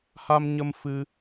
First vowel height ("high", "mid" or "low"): low